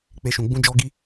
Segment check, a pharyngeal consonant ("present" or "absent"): absent